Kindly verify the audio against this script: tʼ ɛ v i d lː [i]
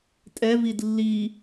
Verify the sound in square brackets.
correct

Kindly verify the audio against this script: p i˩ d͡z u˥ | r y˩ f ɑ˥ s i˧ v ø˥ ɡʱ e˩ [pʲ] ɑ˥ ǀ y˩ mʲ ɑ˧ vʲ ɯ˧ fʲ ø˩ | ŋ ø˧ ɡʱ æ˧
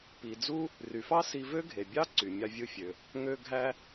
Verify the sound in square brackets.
incorrect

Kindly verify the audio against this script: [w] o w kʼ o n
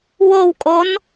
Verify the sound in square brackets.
correct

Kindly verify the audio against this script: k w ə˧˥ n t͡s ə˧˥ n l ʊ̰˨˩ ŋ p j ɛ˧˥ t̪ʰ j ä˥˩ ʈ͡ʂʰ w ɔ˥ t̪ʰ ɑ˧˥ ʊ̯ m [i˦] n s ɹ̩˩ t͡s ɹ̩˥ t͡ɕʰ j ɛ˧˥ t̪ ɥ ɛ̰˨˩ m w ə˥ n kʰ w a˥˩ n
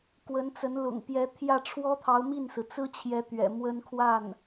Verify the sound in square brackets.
incorrect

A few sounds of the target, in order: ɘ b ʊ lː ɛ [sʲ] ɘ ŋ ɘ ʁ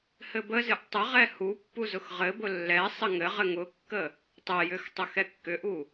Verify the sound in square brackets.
incorrect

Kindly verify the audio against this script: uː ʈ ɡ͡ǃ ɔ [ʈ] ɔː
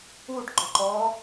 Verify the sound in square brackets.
incorrect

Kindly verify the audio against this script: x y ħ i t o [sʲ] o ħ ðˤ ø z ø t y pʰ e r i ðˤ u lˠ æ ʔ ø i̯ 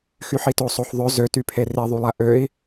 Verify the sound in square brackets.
incorrect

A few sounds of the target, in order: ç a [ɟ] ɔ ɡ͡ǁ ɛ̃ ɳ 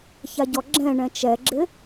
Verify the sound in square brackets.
correct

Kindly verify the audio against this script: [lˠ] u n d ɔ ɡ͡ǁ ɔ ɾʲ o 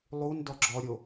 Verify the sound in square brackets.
correct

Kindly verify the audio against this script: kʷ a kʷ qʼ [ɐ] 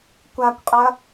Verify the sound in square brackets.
correct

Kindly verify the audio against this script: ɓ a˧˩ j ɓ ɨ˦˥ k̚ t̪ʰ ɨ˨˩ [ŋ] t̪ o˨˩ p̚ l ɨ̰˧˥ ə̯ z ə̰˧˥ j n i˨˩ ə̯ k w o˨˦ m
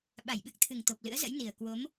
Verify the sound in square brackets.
correct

